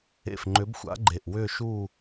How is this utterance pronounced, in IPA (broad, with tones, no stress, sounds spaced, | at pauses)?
ḛ˨˩ f ŋ͡ǃ ʏ˨˥ b xʷ a̰˨˥ ɡ͡ǃ e˨˩ ʔ w ʏ˥˨ ʃ u˥˨